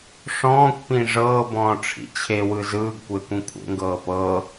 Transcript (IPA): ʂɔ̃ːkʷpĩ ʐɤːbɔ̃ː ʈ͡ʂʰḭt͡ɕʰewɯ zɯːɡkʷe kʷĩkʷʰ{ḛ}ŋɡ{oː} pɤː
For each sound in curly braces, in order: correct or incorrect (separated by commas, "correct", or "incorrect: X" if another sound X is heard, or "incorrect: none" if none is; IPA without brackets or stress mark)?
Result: correct, incorrect: ɤː